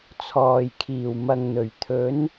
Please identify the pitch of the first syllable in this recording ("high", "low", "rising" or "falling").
low